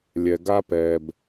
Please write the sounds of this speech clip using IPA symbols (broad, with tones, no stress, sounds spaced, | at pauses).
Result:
lʲ ɛ˩ ɡ a˧ p ɛ˩ b